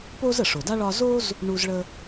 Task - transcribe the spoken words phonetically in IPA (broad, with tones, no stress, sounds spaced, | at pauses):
p o˥ z ə˩ ʂ o˩ d a˥ ɭ ɒ˥ z o˥ z | ɳ u˥ z ɭ ə˥